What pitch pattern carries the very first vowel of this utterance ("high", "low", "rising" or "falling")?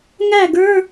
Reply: falling